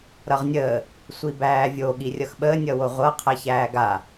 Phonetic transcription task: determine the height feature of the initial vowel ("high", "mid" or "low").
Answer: mid